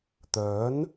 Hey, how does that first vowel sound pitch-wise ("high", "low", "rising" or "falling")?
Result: rising